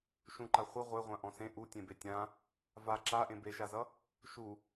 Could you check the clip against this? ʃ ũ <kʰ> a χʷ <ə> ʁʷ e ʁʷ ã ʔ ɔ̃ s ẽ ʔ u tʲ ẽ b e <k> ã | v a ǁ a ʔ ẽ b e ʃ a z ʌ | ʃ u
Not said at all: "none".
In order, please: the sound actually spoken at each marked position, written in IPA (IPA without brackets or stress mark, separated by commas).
ǃ, ə, tʲ